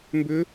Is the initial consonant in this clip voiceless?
no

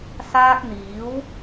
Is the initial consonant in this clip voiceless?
yes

